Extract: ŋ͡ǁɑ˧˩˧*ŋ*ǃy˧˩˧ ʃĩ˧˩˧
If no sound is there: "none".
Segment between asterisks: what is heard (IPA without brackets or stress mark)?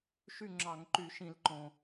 ŋ